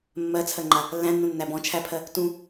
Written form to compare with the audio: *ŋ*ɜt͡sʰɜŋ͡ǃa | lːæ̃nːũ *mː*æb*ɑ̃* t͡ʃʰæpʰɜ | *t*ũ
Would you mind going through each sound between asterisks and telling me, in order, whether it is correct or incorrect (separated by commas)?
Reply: incorrect, incorrect, incorrect, correct